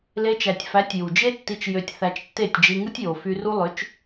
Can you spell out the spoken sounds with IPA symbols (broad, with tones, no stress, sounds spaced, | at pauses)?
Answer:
l e˧ t͡ʃ æ˨ tʲ f æ˨˦ tʲ j u˨ d͡ʒ e˦ tː i˧ t͡ʃ j ø˧ tʲ θ æ˧ t͡ʃ tː e˦˨ tʲ d͡ʒ i˧ ŋ ɯ˦ tʲ j o˨ f y˧ r u˦ lˠ ø˨˦ t͡ʃ